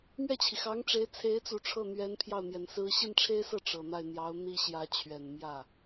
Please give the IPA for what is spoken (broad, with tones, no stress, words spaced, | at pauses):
mɥɛ˥˩t͡ɕʰi˩xɑ˧˥ŋʈ͡ʂe˧˥ɪ̯ t͡sʰe˧˥ɪ̯t͡su˨˩ ʈ͡ʂʰɤ˥˩n̪ɥɛ˧˥n pʰjɑ˥˩ʊ̯n̪jɛ˨˩nsɹ̩˥ ɕi˥˩nʈ͡ʂʰe˥ɪ̯sɤ˥˩ ʈ͡ʂɤ˨˩n̪a˥˩ɪ̯ n̪jɑ˧˥ʊ̯n̪i˥ɕjä˧˥ t͡ɕʰɥɛ˨˩nmjä˥˩